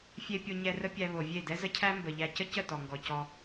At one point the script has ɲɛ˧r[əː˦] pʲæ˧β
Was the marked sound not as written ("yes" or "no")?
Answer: yes